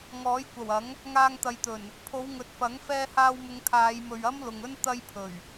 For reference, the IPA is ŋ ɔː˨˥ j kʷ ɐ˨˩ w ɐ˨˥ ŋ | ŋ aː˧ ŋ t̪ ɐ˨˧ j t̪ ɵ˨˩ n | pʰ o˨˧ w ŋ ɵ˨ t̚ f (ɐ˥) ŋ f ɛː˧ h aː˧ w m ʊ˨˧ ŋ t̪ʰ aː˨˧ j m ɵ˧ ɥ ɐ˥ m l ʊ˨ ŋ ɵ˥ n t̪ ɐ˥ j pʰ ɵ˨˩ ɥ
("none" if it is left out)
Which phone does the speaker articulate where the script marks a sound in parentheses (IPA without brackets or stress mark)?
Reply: ɐ˨˥